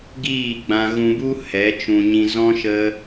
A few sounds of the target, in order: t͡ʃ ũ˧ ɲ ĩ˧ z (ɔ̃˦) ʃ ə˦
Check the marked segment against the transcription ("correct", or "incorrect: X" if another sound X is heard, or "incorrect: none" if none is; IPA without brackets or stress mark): correct